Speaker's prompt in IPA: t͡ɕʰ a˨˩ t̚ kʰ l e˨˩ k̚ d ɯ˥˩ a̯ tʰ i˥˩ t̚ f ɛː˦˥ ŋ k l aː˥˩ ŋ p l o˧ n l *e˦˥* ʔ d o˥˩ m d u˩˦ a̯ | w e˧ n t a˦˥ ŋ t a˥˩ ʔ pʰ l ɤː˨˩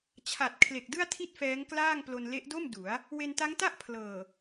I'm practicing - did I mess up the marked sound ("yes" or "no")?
no